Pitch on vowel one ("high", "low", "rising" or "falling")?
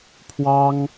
high